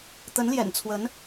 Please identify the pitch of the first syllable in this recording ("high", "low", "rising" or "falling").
rising